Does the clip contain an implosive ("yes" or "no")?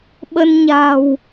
yes